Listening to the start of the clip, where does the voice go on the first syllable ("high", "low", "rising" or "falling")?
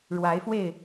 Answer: rising